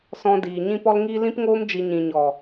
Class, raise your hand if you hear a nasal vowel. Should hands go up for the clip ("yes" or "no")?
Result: yes